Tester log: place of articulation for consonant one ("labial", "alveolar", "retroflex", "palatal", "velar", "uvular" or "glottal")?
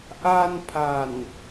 glottal